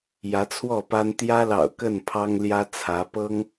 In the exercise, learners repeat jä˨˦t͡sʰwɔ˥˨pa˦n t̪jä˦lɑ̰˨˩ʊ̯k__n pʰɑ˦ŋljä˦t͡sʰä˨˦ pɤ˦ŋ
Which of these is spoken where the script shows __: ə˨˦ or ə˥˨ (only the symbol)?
ə˥˨